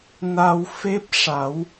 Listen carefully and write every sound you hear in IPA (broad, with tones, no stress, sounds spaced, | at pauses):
n a˧ w f e˦˥ p̚ ʂ a˨˩˦ w